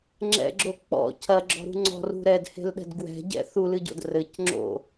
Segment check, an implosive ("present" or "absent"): present